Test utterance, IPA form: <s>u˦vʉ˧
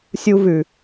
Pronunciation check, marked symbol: incorrect: sʲ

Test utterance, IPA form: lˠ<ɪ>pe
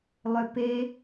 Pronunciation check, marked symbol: incorrect: ʏ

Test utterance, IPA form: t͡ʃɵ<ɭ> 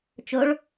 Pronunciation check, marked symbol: correct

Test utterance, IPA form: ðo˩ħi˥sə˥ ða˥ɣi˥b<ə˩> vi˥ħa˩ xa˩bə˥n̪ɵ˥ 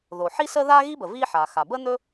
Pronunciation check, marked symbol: correct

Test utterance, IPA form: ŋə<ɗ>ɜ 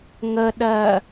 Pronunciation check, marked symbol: correct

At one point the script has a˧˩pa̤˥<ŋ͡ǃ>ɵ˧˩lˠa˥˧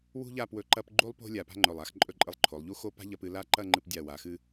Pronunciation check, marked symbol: correct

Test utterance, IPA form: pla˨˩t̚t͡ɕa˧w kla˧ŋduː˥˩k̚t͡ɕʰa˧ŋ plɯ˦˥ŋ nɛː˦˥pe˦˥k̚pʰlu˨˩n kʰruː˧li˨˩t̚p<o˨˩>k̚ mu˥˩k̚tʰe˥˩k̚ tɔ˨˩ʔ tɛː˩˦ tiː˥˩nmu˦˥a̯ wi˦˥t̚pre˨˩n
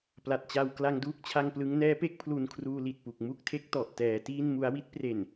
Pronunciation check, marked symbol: incorrect: u˨˩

